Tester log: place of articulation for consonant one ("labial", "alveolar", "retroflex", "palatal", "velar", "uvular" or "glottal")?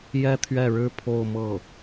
palatal